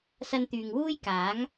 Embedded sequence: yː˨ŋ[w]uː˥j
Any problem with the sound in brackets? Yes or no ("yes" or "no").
no